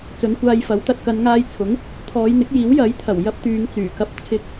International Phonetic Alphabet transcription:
t͡s ɵ˨˧ n kʷ aː˧ j f ɐ˨˥ w t̪ ɐ˨ t̚ k ɐ˨˧ n ŋ aː˧ j t͡sʰ ʊ˨˥ ŋ | t̪ʰ ɔː˨˧ j n̪ ɪ˨˥ k̚ j iː˨˥ w j ɐ˨˥ j t̪ʰ ɐ˨˩ w j ɐ˥ p̚ t̪ yː˨˧ ŋ t͡s yː˨˩ k ɐ˧ p̚ t͡sʰ ɪ˧ k̚

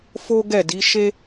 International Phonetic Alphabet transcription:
f o˦ ɡ ɛ˦˨ d i˨˦ ʃ e˦

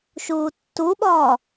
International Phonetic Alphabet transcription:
ʃ uː tː u ɓ ɒː

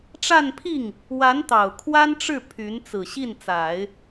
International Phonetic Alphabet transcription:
ʈ͡ʂ a˥˧ n pʰ i˥˩ ŋ | w a˧˥ n t̪ ɑ˨˩ ʊ̯ kʰ w a˥ n ʈ͡ʂ ɻ̩˥˩ pʰ y˧˥ n t͡s ɹ̩˨˩ ɕ i˥˩ n t͡s a˨˩˦ ɪ̯

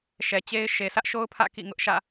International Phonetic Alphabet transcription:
ʃ ɛ˨ t͡ɕ e˦ ɪ̯ ʃ e˨ sʰ ä˦ ʔ ʃ o˦ ʊ̯ pʰ ä̰˦˨ k ḭ˦˨ ŋ ʊ˦ ʔ ʃ ä̰˦˨

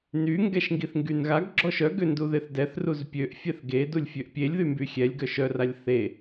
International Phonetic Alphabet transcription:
n y ŋ ɡ ɛ ʃ ŋ ɡ i θ ŋ ɡ y n ɣ a ɡ ɡ͡ǁ ɔ ʃ œ ɡ ø n d u ð e θ d ɛ θ r u z pʲ ø ʔ fʲ ɛ θ ɡ e d u lʲ fʲ ø ʔ pʲ e lʲ ð y m b y xʲ ɛ lʲ ɡ œ ʃ œ r a lʲ θ e

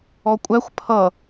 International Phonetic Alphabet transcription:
ɔ kʷʼ æ xʷ pʰ ʌ

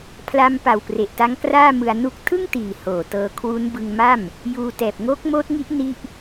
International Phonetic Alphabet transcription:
pʰ l a˦˥ m p a˨˩ w p r e˨˩ ʔ t a˦˥ ŋ k r aː˥˩ m ɯ˧ a̯ n u˦˥ k̚ tʰ ɯ˥˩ ŋ t iː˨˩ h oː˨˩ t ɤː˧ kʰ w u˦˥ n b ɯ˧ ŋ m a˥˩ m | j uː˧ t ɛː˨˩ p̚ ŋ oː˦˥ k̚ m oː˦˥ t̚ ŋ i˦˥ ʔ n i˥˩ ʔ

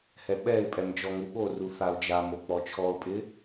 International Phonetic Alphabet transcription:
h ɛ ɓ ɛ ɪ̯ pʼ ɛ m d͡ʒ ɔ ŋ u ɓ o r u θ a ʊ̯ d͡ʒ a m o k͡p ɔ t͡ʃʰ ɔ ʊ̯ pʼ ɪ

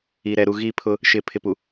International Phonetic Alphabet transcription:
i˨ ɾ ɛ˨ ɾ u˨ ɣ i˦˨ pʰ ʊ˦ | ʃ ɪ˨ pʰ ɪ˨ p u˨

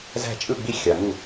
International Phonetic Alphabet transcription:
z æ̤˧˩ t͡ʃʼ ɯ˧˩ ɡ͡b i˧˩ xʲ ɑ˩ ŋ u˧˩

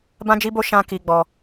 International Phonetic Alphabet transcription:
b ã˦ d͡ʒ i˦ b o˦ ʃ ã˧ k i˦ ɡ͡b ɔ˦

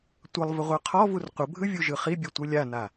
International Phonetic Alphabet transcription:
tʷ ʌ lˠ v ə ʁʷ ə˞ qʰ ɔ v u r qʷ ə bʱ ɯ vʲ u ʒ ɯ χ i bʲ o tʷ ɯ lʲ a n a

